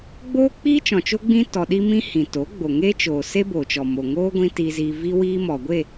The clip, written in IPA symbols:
ɡ͡boː˦k͡piː˦ t͡ʃɔ̃˨t͡ʃo˦ɡ͡bĩ˦ tɔ˧ ɗi˦mĩ˦hĩ˨ to˨˦ɡ͡bo˨ŋe˦t͡ʃoː˨ se˦boː˨t͡ʃɔ˨mo˨ ŋoː˦ɡʷĩ˧ tiː˧ziː˧ vi˦ wiː˦mɔ˨ ɡʷe˦˨

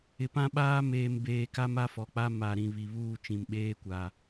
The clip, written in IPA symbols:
ɪ˨pã˦ɓaː˦ meː˨mbeː˨ka˦m a˦fɔ˨k͡pa˦ ma˨ɾĩ˨βi˨βuː˦˨ t͡ʃĩ˨mɓeː˦ kʷa˨

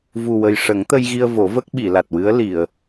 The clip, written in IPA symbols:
vu˨˩wə˨˩j ʂə˨˩˦ŋt̪ə˧jɣi˧ə̯ vo˨˩˦və˦˥k̚ ɓi˨˩˨la˨˩t̚wɨ˧˥ə̯ li˨˩˨ə̯

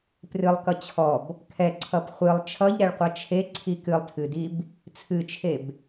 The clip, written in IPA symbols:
prɨlˠkʌ t͡ɕʰɔb | kʰɛǀʰʌp χʷɨlˠ t͡ʃʰʌʎɾɛɭqʷʌ t͡ʃʰeǀʰi kɨlˠtʰɨdib | t͡sʰɨt͡ʃʰeb

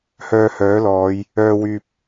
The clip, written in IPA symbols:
hœː˧hœː˨˥lɔː˨˧j | œː˨wyː˨p̚

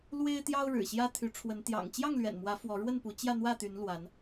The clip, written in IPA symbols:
lwe˦ɪ̯t̪jɑ˦ʊ̯ ɻɻ̩˨˩ɕjä˦t̪ʰy˨˦ ʈ͡ʂʰwə˨˦n t̪jɑ̰˨˩ŋt͡ɕjɑ˥˨ŋlɥɛ̰˨˩nmwä˨˦ fwɔ˨˦ɻwə˥˨npu˨˦t͡ɕjä˥˨ n̪wä˥˨t̪y˨˦nlwa˨˦n

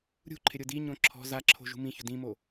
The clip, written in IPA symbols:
ɾʲṳ ǃʰɪɾʲʊdiɲõ ǁʰɔ̤ zaǁʰo̤ ʒṳmĩçʊ dĩmo

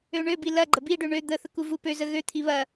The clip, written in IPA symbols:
øɳøbi lɐɡ͡ǃə biɖø ɳø d̪əθə kuvupøzə ɣøt̪ʰi βɐ

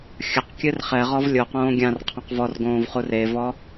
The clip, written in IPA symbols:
xʲɐqkʲɨr χɛ ʁɔvlʲoqõː ɡʲãr qʰɔ̃qvɔrɡõːv χurevɔ

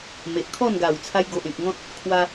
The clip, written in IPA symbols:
me˨ʔkʰɔ˥˧nɡa˨˩w t͡sʰa˧jɡo˨ʔẽ˨k̚ ŋɔ̃˦t̚ | kʰwa˧

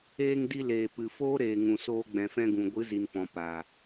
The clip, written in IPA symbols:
eː˧ŋdi˧ leː˨pɨ˨ foː˦ɾeː˨ŋũ˨soː˧ ɡ͡bɛ̃˨fɛ̃˧ɡũ˨ ɡʷɨ˨˦zi˨nfɔ̃˨ paː˨

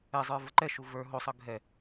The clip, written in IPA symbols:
ɛzˤə˞ vəǃɛʃu və˞ ɦosˤɤ ɡʱɛ

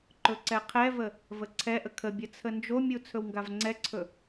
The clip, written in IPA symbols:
ǃɵǀɛqʰɛvə | vəǀʰɛʔə kʰəbʲə t͡sʰənd͡ʒomʲu t͡sʰɵwŋɡavŋ͡ǀɛǀʰɵ

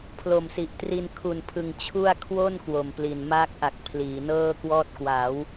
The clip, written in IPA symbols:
pʰlo˨˩msi˨˩ʔtri˧n kʰu˨˩npʰɯ˨˩ŋ t͡ɕʰu˥˩a̯ kʰwo˥˩n kwo˨˩mpli˨˩n maː˦˥k̚ʔa˨˩k̚ pʰliː˩˦nɤː˥˩kwɔː˥˩t̚ kwaː˩˦w

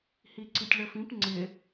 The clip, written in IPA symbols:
hiǀitʲɭəfĩp ŋ͡ǀɪ

